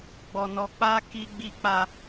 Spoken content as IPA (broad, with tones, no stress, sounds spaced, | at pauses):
ɡ͡b ɔ˨ n ɔ˨ k͡p a˧ k i˧ ɡ͡b i˧ k͡p a˧